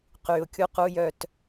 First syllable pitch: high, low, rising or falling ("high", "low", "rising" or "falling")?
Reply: low